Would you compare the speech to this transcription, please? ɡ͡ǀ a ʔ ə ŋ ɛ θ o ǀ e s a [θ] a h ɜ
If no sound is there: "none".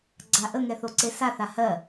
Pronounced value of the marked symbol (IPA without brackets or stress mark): θ